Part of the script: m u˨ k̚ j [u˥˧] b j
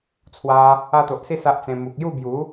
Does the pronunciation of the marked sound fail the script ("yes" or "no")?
no